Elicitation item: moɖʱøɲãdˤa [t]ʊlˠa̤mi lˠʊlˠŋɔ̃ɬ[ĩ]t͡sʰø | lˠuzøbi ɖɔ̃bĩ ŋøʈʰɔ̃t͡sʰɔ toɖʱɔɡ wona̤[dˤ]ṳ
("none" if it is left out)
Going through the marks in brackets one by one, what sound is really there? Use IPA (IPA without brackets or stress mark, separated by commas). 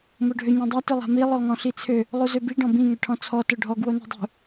t, i, dˤ